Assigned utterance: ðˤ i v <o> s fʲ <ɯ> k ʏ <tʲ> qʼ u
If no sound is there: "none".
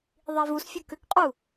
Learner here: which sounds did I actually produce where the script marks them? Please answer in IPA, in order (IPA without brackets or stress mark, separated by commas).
u, u, k